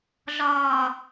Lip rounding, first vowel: rounded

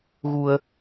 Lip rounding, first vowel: rounded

